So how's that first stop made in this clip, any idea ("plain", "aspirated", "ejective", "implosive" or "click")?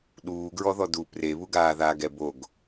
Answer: implosive